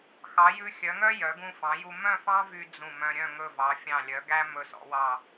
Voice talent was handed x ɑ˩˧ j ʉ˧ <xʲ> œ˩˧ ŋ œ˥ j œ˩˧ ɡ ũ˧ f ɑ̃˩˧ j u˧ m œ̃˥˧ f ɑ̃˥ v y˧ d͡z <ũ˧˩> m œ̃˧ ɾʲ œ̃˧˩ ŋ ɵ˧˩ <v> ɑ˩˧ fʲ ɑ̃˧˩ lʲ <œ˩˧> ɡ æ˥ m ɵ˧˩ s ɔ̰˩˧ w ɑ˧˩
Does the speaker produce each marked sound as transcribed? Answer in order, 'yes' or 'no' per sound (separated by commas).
yes, yes, yes, yes